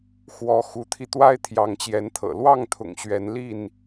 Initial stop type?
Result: aspirated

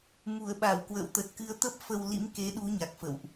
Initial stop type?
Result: implosive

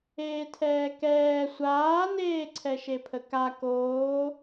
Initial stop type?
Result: aspirated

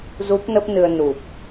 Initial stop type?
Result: plain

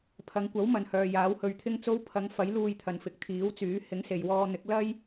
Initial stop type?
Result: aspirated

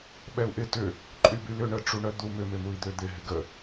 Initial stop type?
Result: implosive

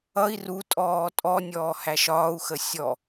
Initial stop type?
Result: ejective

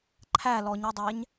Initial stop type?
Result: click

